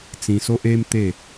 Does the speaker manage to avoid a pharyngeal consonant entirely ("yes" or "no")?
yes